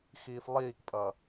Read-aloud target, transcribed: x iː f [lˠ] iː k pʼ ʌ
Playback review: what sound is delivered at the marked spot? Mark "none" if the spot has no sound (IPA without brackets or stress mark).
lˠ